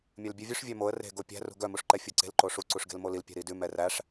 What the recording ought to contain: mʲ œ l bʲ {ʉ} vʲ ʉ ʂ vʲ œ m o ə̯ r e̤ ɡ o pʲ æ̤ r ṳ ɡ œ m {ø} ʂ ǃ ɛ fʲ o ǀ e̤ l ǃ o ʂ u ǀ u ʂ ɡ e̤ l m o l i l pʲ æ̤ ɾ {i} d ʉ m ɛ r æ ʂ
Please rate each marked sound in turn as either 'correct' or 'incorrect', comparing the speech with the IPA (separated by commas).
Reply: correct, incorrect, correct